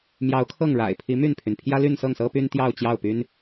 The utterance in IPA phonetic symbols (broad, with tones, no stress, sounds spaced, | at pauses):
m j ɑ˧˥ ʊ̯ kʰ ɤ˥˩ ŋ ɻ a̰˨˩ ɪ̯ pʰ i˧˥ m y˥˩ n pʰ y˩ n pʰ j ä˥ l y˥˧ n s ɤ˥˩ ŋ s ɤ˥ p y˥ n t̪ j ɑ˥˧ ʊ̯ t͡ɕ j ɑ˥˩ ʊ̯ p y˥ n